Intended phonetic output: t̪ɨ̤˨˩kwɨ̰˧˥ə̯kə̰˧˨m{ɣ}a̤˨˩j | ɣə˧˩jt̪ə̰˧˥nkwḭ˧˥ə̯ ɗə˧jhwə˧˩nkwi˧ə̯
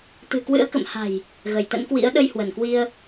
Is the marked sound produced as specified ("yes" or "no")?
no